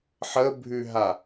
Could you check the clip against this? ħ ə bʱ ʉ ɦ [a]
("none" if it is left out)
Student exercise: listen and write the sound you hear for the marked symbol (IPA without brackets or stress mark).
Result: a